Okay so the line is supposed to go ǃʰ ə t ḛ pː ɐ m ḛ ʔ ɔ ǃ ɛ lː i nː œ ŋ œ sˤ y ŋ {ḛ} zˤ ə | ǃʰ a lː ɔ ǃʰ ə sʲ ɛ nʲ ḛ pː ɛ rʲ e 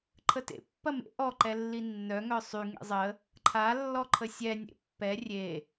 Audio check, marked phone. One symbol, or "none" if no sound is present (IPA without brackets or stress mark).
ḛ